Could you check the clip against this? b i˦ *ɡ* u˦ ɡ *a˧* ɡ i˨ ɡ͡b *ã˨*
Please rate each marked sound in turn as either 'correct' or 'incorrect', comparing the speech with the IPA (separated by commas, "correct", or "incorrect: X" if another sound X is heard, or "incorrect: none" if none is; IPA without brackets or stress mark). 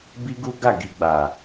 correct, incorrect: a˦˨, incorrect: a˨